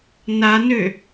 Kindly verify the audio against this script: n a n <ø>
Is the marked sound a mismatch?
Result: no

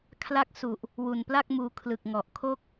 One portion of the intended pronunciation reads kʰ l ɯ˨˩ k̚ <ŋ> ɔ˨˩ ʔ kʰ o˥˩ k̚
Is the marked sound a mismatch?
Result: no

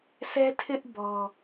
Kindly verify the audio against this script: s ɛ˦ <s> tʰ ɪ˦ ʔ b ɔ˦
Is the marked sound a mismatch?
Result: yes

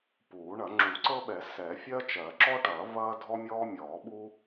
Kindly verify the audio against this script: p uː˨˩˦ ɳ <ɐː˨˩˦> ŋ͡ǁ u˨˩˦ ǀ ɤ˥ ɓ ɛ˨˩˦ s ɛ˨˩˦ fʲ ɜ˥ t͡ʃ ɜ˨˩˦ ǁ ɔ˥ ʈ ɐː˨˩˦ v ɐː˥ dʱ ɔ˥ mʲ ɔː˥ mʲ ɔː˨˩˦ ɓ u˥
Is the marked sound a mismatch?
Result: yes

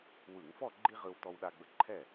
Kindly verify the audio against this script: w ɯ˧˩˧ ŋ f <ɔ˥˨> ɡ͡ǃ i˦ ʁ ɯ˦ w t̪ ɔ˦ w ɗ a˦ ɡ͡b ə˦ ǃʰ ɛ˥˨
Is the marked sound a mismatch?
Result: no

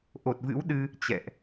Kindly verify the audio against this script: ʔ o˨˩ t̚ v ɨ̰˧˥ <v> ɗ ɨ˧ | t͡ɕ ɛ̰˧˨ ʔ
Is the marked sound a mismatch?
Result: yes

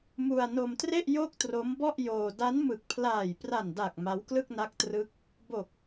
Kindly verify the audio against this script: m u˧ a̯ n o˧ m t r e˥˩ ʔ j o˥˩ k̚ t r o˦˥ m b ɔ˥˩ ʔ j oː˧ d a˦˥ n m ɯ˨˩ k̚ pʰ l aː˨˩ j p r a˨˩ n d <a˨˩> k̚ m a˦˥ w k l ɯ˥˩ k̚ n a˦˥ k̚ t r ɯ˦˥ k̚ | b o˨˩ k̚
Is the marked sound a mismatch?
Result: no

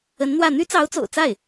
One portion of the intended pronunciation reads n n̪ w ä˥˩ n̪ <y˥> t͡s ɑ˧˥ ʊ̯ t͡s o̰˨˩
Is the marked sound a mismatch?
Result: no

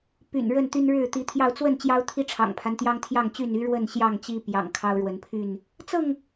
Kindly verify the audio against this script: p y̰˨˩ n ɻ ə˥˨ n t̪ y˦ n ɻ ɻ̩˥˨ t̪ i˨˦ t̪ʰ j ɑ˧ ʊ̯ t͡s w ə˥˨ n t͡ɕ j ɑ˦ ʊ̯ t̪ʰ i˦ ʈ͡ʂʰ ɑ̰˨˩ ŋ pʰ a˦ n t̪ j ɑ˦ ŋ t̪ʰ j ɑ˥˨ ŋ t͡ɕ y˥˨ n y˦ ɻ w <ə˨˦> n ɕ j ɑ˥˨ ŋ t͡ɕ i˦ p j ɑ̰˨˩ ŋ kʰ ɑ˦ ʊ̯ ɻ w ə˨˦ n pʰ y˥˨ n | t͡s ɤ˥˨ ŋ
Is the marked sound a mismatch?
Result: yes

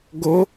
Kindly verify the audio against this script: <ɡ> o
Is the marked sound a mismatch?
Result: no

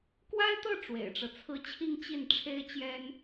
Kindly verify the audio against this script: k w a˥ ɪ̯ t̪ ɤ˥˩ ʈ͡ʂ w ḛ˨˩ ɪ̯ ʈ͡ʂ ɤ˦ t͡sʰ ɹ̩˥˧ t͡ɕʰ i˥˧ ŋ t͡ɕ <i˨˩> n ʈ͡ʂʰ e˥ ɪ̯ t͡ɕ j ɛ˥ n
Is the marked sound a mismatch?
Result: yes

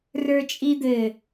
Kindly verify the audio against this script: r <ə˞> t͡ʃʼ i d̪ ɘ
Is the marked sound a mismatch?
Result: no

